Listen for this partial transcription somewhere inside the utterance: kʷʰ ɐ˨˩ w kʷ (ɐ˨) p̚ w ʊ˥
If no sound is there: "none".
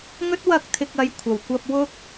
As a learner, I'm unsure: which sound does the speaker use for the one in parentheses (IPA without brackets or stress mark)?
ɐ˧